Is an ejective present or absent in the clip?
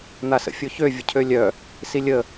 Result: absent